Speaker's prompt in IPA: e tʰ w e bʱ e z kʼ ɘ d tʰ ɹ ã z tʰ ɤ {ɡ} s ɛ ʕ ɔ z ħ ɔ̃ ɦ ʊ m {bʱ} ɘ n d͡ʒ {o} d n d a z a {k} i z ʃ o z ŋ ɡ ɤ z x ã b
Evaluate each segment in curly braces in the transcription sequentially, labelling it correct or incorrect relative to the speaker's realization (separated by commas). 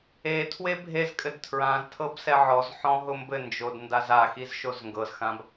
incorrect, incorrect, correct, incorrect